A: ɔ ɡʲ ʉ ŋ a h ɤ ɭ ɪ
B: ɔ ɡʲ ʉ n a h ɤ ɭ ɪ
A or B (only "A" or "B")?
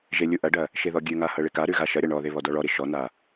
A